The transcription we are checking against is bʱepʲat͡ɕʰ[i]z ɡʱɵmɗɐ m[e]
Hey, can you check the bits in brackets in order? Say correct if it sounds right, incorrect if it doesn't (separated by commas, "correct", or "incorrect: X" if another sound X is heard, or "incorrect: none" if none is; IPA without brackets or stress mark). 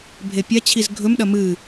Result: correct, incorrect: ɨ